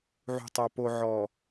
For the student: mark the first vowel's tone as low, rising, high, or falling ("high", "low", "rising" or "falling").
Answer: low